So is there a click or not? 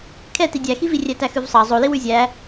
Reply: no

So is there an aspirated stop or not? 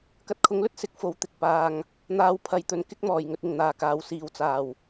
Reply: yes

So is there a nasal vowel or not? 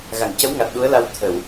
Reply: no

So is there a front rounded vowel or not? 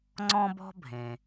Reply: no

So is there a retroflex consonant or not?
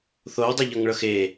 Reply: yes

